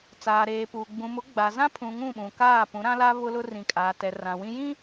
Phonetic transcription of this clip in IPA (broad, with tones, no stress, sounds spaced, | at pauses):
t͡s aː˨ ɾ eː˨ p uː˨ ɡ͡b ũ˨ m ʊ˨˦ ɡ͡b a˨ z ã˦ pʰ ũ˨ ŋ ũ˦˨ ɓ ũ˨ k aː˦˨ p ũ˨˦ ɾ ã˦ l a˦ β ʊ˦ l ʊ˦ r ĩ˨ kʼ aː˨ t ɛ˨ r ã˨ w ĩ˦ j ĩ˦